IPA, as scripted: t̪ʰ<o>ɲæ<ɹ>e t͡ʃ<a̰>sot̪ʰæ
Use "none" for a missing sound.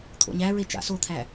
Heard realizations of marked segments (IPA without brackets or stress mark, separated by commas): o̰, ɹ, a̰